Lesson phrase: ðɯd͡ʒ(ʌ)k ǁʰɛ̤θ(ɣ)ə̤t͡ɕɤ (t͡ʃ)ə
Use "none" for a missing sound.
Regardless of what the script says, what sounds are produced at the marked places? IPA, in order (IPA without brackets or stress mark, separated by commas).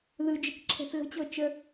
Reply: ə, ɣ, t͡ʃ